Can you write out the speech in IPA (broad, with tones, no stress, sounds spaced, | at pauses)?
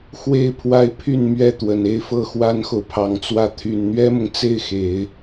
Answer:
x w e˥˩ ɪ̯ pʰ w a˥ ɪ̯ pʰ y˥˧ n m ɥ ɛ˥˩ t̪ w ə˨˩ n e˥˧ ɪ̯ f ɤ˥˩ x w a˥ n x o˨ ʊ̯ pʰ ɑ˨˩ ŋ t͡s w ä˥˩ t̪ʰ y˨˩ n n̪ ɥ ɛ˥ m ʊ˨ ŋ t͡s e˥˩ ɪ̯ x e˨˩˦ ɪ̯